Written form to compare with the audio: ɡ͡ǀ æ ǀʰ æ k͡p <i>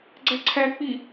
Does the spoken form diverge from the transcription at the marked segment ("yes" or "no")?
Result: no